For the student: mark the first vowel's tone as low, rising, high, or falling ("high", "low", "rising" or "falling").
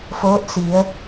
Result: rising